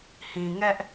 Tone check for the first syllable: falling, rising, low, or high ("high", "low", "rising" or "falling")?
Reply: low